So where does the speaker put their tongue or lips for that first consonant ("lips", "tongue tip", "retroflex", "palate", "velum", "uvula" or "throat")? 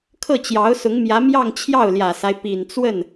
velum